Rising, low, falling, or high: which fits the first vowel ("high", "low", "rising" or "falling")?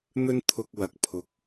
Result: high